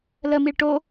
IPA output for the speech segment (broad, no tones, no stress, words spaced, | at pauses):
ləmiɭ ʈo